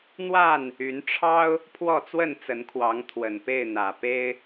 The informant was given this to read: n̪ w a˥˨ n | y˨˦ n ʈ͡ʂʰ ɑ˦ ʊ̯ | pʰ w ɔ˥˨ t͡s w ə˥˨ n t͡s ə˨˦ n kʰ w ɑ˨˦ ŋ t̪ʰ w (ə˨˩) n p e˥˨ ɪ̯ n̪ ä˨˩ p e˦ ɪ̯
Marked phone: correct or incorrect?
correct